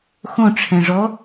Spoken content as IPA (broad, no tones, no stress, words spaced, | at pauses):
xõʈ͡ʂʰɛ̃ʐɔ